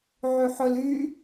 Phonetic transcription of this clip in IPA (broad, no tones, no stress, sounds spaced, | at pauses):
ʕ y ħ ɵ l y